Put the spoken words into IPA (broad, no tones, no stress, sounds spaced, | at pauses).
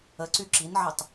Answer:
ə ǀ y ǁ i n ʕ ə tˤ